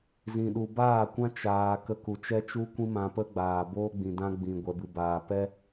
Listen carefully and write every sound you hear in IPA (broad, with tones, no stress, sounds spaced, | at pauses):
z ĩ˨ ɗ u˨ b aː˦˨ kʷ ã˦ t͡ʃ aː˧ k ə˧ k u˨ t͡ʃ ɛ˦ t͡ʃ u˦ kʷ ĩ˦ m ã˧ p ə˦ ɡ͡b aː˨ b oː˦ ɡ͡b ĩ˨ d ã˦ ɡ͡b ĩ˨ ɡʷ ɛ˨ b ɨ˨ b aː˨ p ɛ˦